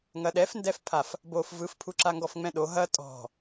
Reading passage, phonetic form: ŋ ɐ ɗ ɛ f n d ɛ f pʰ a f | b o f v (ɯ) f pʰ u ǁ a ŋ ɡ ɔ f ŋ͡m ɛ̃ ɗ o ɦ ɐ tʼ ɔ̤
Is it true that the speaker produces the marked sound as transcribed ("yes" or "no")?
yes